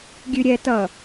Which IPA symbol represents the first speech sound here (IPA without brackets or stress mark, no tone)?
ɡʲ